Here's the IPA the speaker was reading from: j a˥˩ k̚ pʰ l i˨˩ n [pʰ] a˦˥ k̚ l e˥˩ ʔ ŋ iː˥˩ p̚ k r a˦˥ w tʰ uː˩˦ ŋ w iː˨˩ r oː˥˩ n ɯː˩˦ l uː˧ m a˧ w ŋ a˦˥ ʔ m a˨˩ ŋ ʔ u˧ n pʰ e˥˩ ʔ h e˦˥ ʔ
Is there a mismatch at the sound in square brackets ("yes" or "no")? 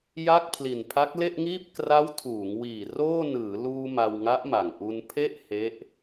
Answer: no